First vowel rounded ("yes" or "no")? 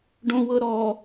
yes